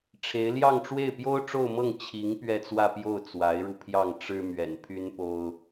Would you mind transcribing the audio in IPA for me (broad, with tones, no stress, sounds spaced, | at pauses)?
ʈ͡ʂʰ e˧˥ ɪ̯ l j ɑ˥˧ ŋ ʈ͡ʂ w e˥˩ ɪ̯ p j o˥ ʊ̯ ʈ͡ʂ o˥˧ ʊ̯ m ɤ˥˩ ŋ t͡ɕʰ i˧˥ ŋ p ɥ ɛ˥˧ t͡s w ä˥˧ p j o˥˩ ʊ̯ t͡s w a˧˥ ɪ̯ ɻ u˧ pʰ j ɑ˥˩ ŋ ʈ͡ʂ ɻ̩˥ m ɥ ɛ̰˨˩ n pʰ y˥ n p o˥ ʊ̯